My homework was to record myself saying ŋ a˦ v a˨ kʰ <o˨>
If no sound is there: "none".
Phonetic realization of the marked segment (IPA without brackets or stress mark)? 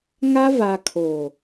o˨